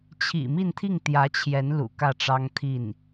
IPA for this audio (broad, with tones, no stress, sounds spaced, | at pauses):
t͡ɕʰ ḭ˨˩ m i˥˧ n t̪ʰ i˥˩ ŋ t̪ j ä˧˥ t͡ɕʰ j ɛ˧˥ n l ṵ˨˩ k ä˥˩ ʈ͡ʂ ɑ˥ ŋ t̪ʰ i˥˩ n